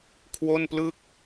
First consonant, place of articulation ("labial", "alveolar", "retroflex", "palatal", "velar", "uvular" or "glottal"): velar